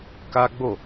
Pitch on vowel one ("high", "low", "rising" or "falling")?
high